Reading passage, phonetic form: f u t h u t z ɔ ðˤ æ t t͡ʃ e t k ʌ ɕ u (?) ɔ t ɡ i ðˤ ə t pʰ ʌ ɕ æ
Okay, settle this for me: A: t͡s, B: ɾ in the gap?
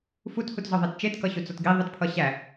A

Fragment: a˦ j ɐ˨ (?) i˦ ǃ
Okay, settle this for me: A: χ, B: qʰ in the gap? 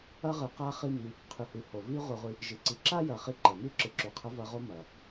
A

